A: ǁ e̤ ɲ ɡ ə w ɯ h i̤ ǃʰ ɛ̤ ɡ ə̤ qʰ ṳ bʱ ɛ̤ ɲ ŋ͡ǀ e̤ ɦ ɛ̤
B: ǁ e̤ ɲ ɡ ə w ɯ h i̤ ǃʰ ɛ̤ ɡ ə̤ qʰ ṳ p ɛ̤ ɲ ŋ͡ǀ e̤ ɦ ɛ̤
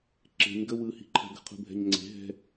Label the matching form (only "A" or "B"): A